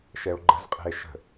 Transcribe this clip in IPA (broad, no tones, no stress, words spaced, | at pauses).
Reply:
ʃɛo̯ɡ͡ǃə̤zqʼɛ̤e̯ ʃə̤